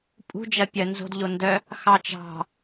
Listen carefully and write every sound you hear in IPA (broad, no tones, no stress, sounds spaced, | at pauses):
pʼ ṳ d͡ʒ ɐ pʲ ɐ n z o̤ d ʎ o n d œ | x ɑ t͡ʃ ɑ̤